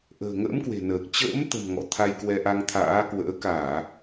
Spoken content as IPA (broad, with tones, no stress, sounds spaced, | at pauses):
ʔ ə̤ː˨˩ ŋ ə̰ː˧˥ m k w e̤˨˩ n əː˨˩ k̚ t͡ɕ ə̰ː˧˥ m t̪ ə̤˨˩ m ŋ ɔ̰˧˨ t̪ʰ a˧ j k w ɛ˧ ʔ a˧ ŋ t̪ʰ a̰ː˧˥ k w ə̰ː˧˥ k aː˧˩˨